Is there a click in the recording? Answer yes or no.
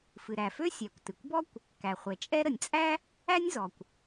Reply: no